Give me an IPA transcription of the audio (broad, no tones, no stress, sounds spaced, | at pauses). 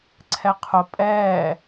ǀʰ ɛ qʰ o pʼ ɛː